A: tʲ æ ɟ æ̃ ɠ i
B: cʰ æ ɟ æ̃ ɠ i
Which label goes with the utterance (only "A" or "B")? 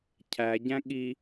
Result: B